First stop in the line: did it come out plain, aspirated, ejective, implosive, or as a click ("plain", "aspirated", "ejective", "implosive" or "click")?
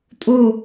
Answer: ejective